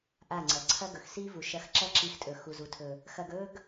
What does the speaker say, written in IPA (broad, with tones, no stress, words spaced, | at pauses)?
ʔa˦˨ŋ͡ǀɐ˨ ǀʰɐ˦ɡɵ˨x si˦vu˨ ʃɐ˧xǁɐ˦ǁi˧xtʼɵ˨ xu˨zu˨tʰɵ˨ | xɐ˧ɡɵ˦ɡ